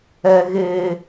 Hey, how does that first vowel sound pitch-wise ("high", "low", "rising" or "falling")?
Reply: low